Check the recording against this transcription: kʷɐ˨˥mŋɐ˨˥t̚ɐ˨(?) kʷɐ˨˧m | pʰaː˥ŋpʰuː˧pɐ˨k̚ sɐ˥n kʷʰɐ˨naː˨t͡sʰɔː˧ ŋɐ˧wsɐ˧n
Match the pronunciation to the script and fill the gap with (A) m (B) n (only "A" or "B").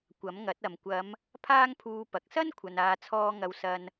A